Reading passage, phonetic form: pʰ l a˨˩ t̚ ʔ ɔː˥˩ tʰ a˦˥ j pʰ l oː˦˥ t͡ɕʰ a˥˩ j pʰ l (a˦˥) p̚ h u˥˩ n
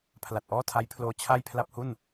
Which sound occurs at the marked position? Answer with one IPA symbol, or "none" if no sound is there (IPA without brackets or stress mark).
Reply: a˥˩